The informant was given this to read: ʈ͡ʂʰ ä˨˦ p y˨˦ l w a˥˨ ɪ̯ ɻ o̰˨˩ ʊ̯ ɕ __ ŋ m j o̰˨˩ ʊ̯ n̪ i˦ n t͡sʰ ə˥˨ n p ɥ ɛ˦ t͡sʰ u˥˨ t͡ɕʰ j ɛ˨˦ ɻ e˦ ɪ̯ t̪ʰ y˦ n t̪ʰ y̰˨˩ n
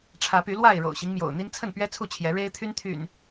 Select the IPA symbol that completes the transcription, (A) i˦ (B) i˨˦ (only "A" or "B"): A